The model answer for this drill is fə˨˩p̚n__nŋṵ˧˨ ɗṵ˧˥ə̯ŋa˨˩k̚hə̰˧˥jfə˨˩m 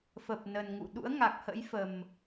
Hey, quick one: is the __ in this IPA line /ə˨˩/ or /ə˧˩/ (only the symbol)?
ə˨˩